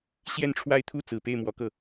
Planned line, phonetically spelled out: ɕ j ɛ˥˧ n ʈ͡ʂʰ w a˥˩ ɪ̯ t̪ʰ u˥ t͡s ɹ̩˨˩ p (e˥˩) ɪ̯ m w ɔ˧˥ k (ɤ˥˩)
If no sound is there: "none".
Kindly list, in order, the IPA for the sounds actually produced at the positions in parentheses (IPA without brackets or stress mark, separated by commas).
e˥˩, ɤ˥˩